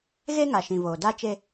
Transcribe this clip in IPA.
ɣ e˦ ŋ a˨ ʃ ĩ˨ v oː˨ d a˦ t͡ʃ e˦

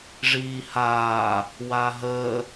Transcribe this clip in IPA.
ʐ iː h aː | w a ɦ əː

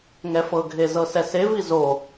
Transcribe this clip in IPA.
ŋ ɛ f ɤ ɡʱ e z ɤ s ɛ s e v i z o

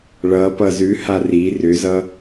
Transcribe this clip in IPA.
ɭ ʌ p ʌ z ʉ h a r i r ʏ z ʌ

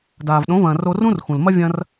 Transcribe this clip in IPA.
d aː˩ v ɗ õ˩˥ v ɐ̃ː˩ r o˧ r ũ˥ r x ũ˩ l m ɐ˥ vʲ ɐ̃˧ r

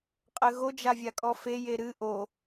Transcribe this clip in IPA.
qʼ ɘ ɣ o d͡ʒ a vʲ a kʼ ɔ f e j e ɾ ɨ ʔ o

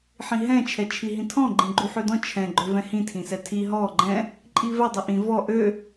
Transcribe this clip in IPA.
ħ ĩ ɦ ɛ̃ t͡ʃʰ ɛ t͡ʃʰ i ɦ ĩ tʰ ɔ̃ ɡ͡ǃ ĩ ɡ͡ǃ u ħ ø d ɔ̃ t͡ʃʰ ɛ̃ ɡ͡ǃ ø v ɛ̃ h ĩ tʰ ĩ s ɛ tʰ i ɦ ɔ ɡ͡ǃ ɛ̃ | ǃʼ i v ɛ dˤ i ʔ ĩ v ɔ ʔ ø

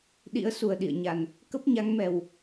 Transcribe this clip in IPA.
ɗ ḭ˧˥ ə̯ s u˨˩ ə̯ ɗ ḭ˧˨ ə̯ ɲ a˨˩ n | k ə˦˥ p̚ ɲ a˨˦ ŋ m ɛ˨˩ w

